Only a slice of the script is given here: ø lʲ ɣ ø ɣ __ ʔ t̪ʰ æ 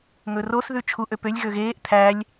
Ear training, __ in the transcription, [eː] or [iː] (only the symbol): eː